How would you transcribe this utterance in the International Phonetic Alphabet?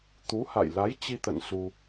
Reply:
t̪u˨˦ ha̰˧˨jla˨˦jt͡ɕi˧t̪ə̰˧˨n su˧

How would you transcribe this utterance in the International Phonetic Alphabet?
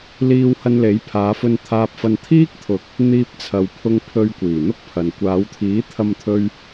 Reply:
liː˧whɐ˧nle˨˥jpʰaː˨˧ fɵ˧nt̪ʰaː˧p̚fɐ˧n t̪ʰiː˥k̚t̪ʰʊ˨k̚ | n̪iː˧p̚t͡sʰɐ˨wpʰʊ˧ŋpʰɵ˧ɥ kʷiː˨˩n̪ʊ˥k̚pʰɐ˨n kʷaː˨˧wt̪ʰiː˨˥t̪ʰɐ˧mt̪ʰɵ˧ɥ

